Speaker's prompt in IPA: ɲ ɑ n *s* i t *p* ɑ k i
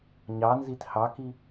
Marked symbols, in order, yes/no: no, no

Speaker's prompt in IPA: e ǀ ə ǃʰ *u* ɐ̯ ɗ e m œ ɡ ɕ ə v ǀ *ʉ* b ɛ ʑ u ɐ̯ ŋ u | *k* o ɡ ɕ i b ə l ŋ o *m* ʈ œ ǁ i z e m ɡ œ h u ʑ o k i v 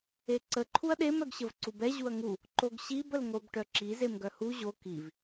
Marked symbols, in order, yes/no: yes, no, no, no

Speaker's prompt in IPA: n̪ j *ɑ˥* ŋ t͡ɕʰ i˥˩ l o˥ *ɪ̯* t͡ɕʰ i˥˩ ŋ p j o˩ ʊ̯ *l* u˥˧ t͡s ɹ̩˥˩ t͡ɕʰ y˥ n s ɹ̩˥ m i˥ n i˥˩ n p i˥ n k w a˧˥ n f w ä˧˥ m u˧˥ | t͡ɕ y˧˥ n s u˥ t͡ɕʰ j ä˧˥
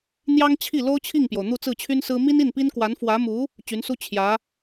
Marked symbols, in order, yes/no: yes, no, no

